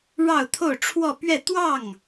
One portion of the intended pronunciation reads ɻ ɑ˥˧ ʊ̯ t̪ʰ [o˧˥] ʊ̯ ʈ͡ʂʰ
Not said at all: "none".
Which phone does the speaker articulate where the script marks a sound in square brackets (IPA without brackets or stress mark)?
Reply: o˥˧